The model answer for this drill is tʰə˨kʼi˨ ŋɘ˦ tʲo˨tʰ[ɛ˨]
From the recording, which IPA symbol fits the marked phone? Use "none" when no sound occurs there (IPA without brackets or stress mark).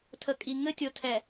ɛ˨